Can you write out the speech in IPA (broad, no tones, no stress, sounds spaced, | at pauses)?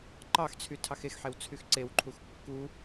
ǃ ɑ x t͡sʰ y tʰ ɑ x e x ħ e w t͡sʰ y x ǀ e w ǃʰ u x kː u